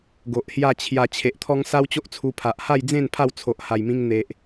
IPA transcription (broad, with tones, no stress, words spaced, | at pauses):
ɡo˨ʔhja˥˧t͡ɕʰja˧ t͡ɕʰe˨ʔt̪ʰɔ˦ŋ sa˦wt͡ɕo˦ʔt͡sʰu˧pʰa˨ʔ ha˥˧jd͡zẽ˥˧n pʰa˥˧wt͡sʰo˨ʔha˨˩jmĩ˧ŋ n̪e˨ʔ